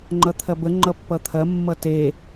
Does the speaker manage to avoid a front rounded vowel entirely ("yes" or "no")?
yes